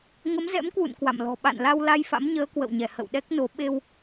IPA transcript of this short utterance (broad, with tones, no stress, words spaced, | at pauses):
ŋə˨˦mzɛ̰˧˥mkwṵ˧˨n kwa̰˧˨mlɔ̤˨˩ ɓa̰˧˨nla˧w la˧jfa̰˧˥mɲəː˨˦ kwə̰˧˨wɲɛ˧˩ hə̰˧˨wɗɛ˦˥k̚no˨˦ ɓe˧w